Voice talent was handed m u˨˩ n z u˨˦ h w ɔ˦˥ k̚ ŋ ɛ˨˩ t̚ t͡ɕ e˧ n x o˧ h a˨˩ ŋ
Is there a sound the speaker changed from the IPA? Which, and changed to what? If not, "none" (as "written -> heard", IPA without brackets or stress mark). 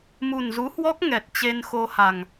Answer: none